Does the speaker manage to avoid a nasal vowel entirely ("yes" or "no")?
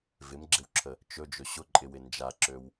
yes